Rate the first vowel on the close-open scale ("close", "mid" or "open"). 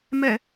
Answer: mid